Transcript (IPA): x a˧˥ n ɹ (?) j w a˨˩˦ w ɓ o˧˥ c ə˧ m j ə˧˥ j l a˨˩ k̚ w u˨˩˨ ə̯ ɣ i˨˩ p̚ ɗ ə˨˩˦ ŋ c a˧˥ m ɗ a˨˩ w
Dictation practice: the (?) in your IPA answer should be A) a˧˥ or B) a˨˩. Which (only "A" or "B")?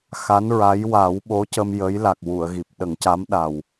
A